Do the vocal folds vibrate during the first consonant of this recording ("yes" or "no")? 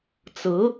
no